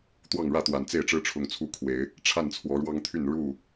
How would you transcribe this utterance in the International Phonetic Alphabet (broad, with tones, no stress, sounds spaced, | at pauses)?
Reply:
t̪ w ɑ˥˨ ŋ ɻ ä˥˨ t̪ w a˨˩ n t͡s e˥˨ ɪ̯ ʈ͡ʂ ɻ̩˦ ʈ͡ʂʰ ʊ˨˦ ŋ t͡sʰ u˦ kʰ w e˨˦ ɪ̯ | ʈ͡ʂʰ a˥˨ n t͡sʰ w ɔ˨˦ ɻ w ɑ˦ ŋ t̪ʰ y˥˨ n ɻ u˥˨